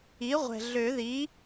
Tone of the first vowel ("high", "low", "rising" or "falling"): rising